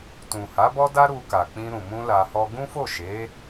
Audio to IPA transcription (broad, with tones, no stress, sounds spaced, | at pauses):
t ũ˨ h a˨˦ b ɔ˦ d a˦ ɾ u˧ k a˨ k͡p ĩ˧ ɾ ũ˨ m ũ˧ l a˧ h ɔ˦ ɡ ũ˦ f o˦˨ ʃ e˨˦